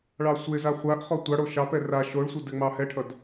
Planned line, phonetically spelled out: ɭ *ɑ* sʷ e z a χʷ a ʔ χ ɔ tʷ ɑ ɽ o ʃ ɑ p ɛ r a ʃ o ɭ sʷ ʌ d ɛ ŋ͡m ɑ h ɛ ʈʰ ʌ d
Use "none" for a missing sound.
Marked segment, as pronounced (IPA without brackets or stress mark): ɑ